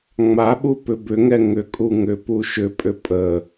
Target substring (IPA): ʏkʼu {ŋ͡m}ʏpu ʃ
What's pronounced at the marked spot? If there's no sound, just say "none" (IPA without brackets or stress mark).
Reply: ŋ